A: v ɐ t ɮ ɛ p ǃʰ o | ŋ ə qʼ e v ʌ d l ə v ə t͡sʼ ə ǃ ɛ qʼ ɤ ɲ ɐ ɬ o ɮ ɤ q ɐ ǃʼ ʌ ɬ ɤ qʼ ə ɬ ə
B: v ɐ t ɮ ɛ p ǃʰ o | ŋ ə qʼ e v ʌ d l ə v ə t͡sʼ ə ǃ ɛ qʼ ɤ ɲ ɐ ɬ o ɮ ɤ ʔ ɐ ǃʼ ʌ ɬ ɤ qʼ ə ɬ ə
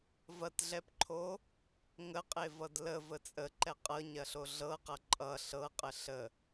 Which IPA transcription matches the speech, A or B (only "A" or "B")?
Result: A